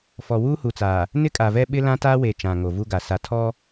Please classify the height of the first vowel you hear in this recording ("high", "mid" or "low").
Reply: mid